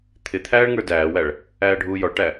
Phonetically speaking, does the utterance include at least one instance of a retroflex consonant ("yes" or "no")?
yes